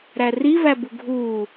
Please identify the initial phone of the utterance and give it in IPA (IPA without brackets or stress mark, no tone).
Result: ɾ